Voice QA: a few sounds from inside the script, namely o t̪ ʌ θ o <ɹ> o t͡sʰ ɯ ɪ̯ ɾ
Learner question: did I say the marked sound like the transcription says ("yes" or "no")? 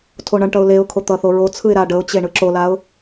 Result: yes